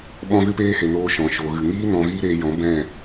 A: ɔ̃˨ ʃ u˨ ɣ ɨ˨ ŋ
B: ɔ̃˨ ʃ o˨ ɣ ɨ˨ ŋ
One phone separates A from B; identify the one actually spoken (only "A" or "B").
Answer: B